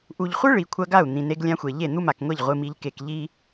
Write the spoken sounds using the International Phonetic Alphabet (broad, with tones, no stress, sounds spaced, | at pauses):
ʔ u˨ ʎ χʷ ɨ˦ ɭ i˨ kʷʰ ɐ˦ ɡ a˦˨ u̯ n̪ ĩ˨ n e˦ ɡ lʲ ã˦ xʷ e˨ ʎ e˦˨ n̪ u˦ m a˨ k ŋʷ e˦˨ ʎ ʁʷ ɨ˨ m i˨ ʎ k e˨ k ʎ i˦